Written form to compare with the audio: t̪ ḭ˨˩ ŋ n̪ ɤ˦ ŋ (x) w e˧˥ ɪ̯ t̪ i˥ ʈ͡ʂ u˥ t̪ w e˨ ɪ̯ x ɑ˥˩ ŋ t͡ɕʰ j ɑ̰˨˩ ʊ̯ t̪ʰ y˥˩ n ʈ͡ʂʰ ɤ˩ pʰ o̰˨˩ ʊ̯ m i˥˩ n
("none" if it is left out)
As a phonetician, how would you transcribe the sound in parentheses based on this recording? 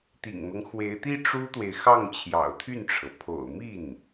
x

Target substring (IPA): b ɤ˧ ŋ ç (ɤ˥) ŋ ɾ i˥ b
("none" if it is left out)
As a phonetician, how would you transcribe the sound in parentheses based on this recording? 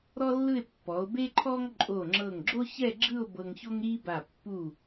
o˥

